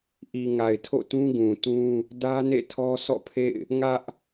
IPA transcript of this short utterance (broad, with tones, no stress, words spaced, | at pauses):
ʔi˨ ŋa˨ɪ̯tʰo̰˦˨tũ˦ ɡũ˨tũ˦ | dä˦ nḛ˦˨tʰɔ˦sʰɔ̰˦˨pʰḛ˦˨ɪ̯ | ŋä˦ʔ